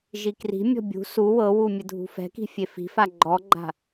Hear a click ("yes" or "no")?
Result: yes